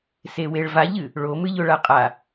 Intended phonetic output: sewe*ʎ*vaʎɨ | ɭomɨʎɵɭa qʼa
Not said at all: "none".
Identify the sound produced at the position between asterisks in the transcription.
ɭ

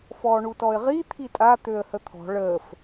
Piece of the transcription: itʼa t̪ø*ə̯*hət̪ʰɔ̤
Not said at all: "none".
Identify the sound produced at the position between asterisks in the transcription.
ə̯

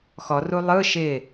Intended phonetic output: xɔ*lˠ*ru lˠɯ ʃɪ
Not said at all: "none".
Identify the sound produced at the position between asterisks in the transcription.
none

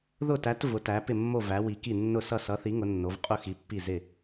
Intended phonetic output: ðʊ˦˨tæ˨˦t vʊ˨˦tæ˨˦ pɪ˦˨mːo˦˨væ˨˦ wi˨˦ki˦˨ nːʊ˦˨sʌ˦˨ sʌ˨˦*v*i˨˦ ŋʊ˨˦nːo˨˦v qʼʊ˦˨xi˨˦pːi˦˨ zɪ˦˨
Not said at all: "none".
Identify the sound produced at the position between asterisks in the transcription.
θ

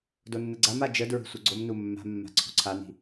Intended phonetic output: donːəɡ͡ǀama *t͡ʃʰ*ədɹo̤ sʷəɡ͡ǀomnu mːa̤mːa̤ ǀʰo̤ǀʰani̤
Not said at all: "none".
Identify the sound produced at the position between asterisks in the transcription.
d͡ʒ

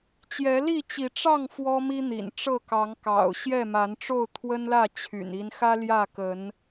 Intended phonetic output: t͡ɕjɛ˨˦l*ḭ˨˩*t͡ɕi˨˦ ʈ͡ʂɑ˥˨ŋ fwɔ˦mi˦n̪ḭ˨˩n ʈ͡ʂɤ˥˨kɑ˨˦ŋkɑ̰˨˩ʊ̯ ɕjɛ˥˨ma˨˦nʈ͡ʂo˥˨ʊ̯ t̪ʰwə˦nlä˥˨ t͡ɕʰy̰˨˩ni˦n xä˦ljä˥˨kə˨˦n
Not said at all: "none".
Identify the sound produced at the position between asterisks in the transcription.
i˥˨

